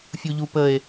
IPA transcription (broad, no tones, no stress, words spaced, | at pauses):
fʲuʎupəe̯